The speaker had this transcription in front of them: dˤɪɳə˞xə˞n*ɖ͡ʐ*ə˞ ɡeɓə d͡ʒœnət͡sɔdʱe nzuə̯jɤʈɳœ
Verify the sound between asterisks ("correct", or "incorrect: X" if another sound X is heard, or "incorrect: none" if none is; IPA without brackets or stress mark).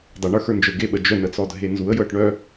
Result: incorrect: d͡ʒ